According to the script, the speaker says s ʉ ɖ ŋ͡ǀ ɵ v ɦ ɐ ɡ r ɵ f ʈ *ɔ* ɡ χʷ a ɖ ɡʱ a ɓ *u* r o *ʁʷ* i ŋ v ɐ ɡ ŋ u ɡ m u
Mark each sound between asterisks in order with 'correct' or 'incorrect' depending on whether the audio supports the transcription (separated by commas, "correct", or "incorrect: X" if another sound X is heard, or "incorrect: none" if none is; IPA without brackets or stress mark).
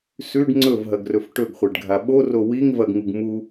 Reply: incorrect: ɵ, incorrect: o, incorrect: w